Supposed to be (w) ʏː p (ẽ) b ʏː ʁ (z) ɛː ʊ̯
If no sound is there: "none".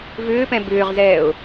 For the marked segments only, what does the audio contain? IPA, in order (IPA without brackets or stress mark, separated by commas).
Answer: v, ɛ̃, z